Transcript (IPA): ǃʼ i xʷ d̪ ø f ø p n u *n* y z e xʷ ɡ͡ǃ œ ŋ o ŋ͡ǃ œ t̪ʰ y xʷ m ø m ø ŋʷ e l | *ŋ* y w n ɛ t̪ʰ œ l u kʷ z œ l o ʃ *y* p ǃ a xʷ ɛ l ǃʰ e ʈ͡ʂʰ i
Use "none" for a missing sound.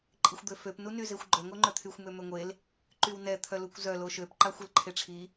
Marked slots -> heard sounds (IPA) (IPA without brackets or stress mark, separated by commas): n, ǃ, ø